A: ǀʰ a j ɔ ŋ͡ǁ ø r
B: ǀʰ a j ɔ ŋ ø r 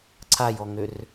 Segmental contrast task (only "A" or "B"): B